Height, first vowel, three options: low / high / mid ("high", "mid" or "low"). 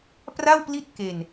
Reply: low